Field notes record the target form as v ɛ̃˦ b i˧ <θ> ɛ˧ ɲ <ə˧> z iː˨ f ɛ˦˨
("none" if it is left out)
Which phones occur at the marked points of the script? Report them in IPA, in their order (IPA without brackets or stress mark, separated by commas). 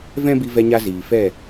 v, a˧